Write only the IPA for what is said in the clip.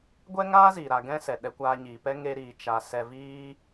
ɡʷɛ˦ŋaː˦ziː˨ ɾa˧ɡɛ̃˦sɛ˨ ɗɛ˧kʷaː˧ɲiː˨pɛ˦ ŋe˧ɾiː˨ t͡ʃa˧ sɛ˧viː˦

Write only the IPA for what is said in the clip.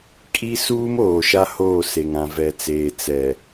kʼi˦ suː˦moː˨ʃa˦ hoː˦˨se˨ŋ ã˨vɛ˨t͡seː˨ t͡sɛ˨

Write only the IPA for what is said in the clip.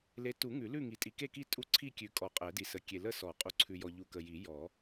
le˨˦tu˨˩˦ ŋʉ˨˩˦lʉ˥˨ŋi˨˩˦tʼi˨ ke˥˨ki˥˨ tʼu˥˨ǀʰi˥˨kʲʉ˨ kʼɔ˨qʼɛ˨˩˦di˨sə˨˦ kʲe˨ lə˥˨sɔ˨˩˦ qʼu˨ǀʰʉ˨jɔ˨ ʎu˨kə˨ji˨˩˦ jɔ˨˩˦

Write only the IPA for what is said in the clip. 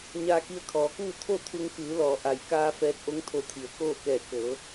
ɲaː˧ki˧ə̯kʰɔː˩˧kuː˥˨ t̪ʰo˥˨t̪ʰu˧ŋkɯː˩˧lɔː˩˧ ʔa˩jkaː˧ fɛː˧˥t̚ʔo˧˥ŋt̪ʰo˧˩t̪ʰi˩˧ə̯ koː˥˨kɛː˧˩ kɤː˩˧

